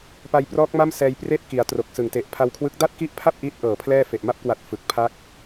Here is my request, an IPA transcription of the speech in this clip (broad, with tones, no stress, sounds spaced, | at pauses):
p a˧ j p r ɔː˦˥ k̚ m a˥˩ m s ɛː˧ j p r eː˥˩ t̚ k i˩˦ a̯ t r o˨˩ k̚ s ɯ˨˩ ŋ t e˨˩ ʔ pʰ a˧ w kʰ w ɯ˦˥ k̚ d a˥˩ t̚ k i˦˥ ʔ pʰ a˥˩ p̚ ʔ iː˦˥ t̚ ʔ ɤː˨˩ pʰ l ɛː˥˩ f e˨˩ ʔ m a˦˥ p̚ k w a˨˩ t̚ f ɯ˨˩ k̚ pʰ a˦˥ k̚